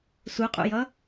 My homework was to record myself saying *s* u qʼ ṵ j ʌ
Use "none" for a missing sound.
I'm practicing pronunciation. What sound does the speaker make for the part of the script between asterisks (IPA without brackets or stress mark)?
s